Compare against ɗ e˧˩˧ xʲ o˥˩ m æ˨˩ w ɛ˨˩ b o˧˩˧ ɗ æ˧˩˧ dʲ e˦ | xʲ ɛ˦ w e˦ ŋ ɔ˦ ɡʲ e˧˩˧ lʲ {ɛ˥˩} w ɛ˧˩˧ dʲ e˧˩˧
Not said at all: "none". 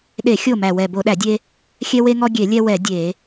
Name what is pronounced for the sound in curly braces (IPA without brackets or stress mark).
ɛ˦